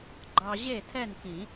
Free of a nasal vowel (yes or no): no